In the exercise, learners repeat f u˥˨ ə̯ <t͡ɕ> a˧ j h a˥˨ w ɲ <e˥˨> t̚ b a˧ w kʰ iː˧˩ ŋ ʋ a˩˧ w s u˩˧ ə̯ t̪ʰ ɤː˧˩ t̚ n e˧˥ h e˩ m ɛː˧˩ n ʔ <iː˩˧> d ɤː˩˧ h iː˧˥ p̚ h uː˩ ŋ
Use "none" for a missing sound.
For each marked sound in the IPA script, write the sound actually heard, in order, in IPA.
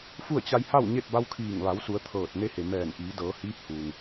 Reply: t͡ɕ, e˥˨, iː˩˧

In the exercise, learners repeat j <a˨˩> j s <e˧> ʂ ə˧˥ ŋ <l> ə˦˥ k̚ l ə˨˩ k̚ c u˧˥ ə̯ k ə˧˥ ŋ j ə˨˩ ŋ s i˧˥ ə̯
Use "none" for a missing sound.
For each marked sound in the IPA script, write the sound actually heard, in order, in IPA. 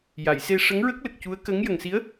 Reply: a˨˩˨, e˧, ɹ

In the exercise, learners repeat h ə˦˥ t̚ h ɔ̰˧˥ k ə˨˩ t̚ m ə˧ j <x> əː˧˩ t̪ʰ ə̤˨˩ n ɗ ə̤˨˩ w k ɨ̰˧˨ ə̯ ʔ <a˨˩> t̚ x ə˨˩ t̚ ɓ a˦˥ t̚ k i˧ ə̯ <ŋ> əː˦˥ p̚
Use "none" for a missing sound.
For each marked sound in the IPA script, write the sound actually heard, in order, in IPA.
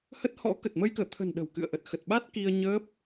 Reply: k, ə˨˩, ɲ

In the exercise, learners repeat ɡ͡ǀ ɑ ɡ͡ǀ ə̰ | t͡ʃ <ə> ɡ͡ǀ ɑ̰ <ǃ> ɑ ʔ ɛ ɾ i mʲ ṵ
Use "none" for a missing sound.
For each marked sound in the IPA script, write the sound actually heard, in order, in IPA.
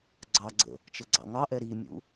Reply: ə, ŋ

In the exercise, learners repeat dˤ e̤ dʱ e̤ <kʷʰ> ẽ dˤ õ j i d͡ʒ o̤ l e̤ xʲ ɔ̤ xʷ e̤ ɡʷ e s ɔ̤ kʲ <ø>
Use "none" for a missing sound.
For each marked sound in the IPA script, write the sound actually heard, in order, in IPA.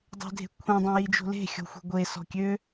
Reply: kʷʰ, ø

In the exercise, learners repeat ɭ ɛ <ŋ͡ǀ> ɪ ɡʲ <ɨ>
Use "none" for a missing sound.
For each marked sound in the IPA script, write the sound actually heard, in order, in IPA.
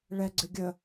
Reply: ɡ͡ǀ, ə

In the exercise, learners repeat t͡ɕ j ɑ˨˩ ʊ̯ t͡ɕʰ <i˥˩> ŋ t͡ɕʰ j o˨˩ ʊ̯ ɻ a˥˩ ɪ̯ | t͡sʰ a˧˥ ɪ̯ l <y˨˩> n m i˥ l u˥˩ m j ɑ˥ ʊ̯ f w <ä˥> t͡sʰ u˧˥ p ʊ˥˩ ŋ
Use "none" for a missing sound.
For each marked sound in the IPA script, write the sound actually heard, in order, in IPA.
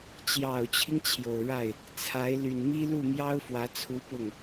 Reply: i˦, y˨˩, ä˧˥

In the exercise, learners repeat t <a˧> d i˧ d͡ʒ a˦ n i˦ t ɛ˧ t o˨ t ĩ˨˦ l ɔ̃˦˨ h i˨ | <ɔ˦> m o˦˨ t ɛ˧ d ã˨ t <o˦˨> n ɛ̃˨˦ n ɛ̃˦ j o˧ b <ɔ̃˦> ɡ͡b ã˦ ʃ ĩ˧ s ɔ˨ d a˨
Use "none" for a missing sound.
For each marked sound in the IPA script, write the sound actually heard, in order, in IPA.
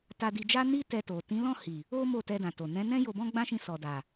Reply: a˧, o˦, o˨, ɔ̃˦

